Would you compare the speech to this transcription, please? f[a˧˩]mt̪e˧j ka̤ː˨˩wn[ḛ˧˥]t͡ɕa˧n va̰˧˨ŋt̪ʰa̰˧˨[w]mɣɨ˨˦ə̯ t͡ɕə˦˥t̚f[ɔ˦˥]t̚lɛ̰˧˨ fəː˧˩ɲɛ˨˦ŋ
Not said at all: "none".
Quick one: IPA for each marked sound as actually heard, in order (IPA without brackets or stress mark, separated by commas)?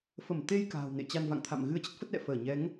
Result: ə˧˩, ḛ˧˨, none, ə˦˥